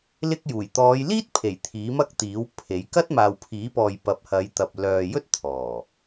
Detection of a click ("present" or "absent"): absent